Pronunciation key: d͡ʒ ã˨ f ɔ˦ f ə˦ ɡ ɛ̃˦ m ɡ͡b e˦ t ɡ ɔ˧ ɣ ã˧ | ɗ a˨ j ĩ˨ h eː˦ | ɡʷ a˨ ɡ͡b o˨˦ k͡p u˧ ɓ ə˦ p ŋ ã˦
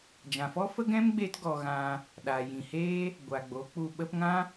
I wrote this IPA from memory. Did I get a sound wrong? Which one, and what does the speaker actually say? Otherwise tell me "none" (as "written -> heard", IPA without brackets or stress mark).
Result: none